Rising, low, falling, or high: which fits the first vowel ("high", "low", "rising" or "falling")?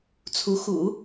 rising